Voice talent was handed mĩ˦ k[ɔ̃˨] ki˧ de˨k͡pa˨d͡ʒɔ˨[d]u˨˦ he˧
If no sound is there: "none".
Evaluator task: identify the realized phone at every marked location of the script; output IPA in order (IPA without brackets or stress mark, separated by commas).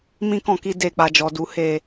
ɔ̃˧, d